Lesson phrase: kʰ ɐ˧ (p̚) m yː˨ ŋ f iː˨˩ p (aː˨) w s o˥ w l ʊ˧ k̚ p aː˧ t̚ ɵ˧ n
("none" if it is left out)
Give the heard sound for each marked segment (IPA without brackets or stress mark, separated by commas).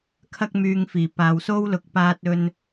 k̚, aː˨